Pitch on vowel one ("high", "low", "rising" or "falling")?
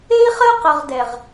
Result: high